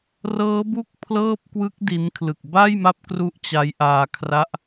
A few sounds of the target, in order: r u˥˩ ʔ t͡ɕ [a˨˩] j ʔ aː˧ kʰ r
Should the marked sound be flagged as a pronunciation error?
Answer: yes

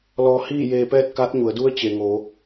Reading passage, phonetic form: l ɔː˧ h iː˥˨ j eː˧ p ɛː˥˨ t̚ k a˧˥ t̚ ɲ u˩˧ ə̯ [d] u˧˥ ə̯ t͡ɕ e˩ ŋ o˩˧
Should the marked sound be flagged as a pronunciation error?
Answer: no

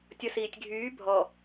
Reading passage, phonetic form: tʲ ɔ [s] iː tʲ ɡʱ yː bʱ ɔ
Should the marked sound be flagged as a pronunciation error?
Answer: no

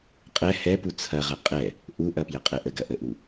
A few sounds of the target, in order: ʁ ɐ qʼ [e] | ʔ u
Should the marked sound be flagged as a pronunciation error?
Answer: yes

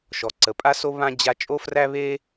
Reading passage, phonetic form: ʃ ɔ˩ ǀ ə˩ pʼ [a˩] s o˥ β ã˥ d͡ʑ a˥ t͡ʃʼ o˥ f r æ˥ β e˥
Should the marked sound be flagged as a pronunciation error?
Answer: yes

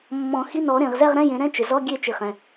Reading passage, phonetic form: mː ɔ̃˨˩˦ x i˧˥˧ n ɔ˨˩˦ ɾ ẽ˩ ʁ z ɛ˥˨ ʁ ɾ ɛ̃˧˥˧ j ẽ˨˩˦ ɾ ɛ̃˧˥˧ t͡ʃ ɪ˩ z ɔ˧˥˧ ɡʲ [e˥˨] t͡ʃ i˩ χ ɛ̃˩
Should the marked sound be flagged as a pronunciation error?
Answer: no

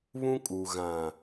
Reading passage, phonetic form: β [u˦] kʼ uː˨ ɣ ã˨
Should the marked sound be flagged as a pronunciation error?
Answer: yes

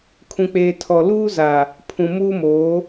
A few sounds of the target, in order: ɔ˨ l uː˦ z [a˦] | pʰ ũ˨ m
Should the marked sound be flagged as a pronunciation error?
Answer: yes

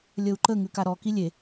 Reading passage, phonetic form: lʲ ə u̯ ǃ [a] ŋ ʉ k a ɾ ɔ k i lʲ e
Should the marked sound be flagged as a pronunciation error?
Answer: yes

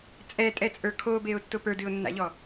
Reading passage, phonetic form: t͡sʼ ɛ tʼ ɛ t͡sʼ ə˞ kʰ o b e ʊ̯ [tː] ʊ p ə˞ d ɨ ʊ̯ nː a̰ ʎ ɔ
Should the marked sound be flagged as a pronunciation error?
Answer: no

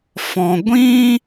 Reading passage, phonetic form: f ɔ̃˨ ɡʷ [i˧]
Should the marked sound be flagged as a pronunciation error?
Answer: yes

